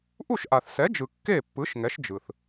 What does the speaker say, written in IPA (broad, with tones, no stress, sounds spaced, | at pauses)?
ʔ u˥˩ ʃ ʔ a˩ θ s ɛ˩˥ d͡ʒ ɯ˩ kː e˥˩ pː ɯ˩˥ ʃ ŋ ɛ˩˥ ʃ d͡ʒ ɯ˩ θ